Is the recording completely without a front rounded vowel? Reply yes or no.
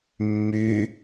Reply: no